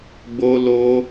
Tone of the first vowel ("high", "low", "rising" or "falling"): high